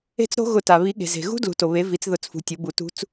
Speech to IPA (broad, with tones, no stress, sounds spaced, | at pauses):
e̤˦˥ t͡s ɾ o̤˦˥ ɣ ʊ˧˩˧ t a˩ β i˩˥ ɠ e̤˩ z e̤˩ ɣ ṳ˦˥ d l ṳ˩˥ t o˩ β e˩˥ v i˩˥ t͡s ð ʊ˧˩˧ t͡s f ṳ˩˥ tʲ ʊ˩˥ b u˧˩˧ t ṳ˦˥ t͡s